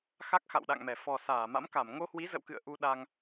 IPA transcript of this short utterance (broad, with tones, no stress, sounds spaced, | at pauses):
x a˦˥ k̚ x a̰˧˨ w ɗ a̰˧˨ ŋ m ɛ˧˩ f ɔ˨˩ s aː˧˩ m a̰˧˥ m k a˧˩ m ŋ o˧ h w i˨˦ z ə̰˧˨ w k ɨ̰˧˨ ə̯ ʔ u˧ ɗ a˧ ŋ